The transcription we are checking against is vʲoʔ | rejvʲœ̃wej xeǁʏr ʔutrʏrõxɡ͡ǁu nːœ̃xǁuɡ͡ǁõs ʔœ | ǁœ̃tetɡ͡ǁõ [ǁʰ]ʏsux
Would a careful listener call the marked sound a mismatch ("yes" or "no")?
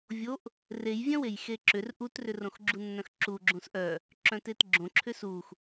no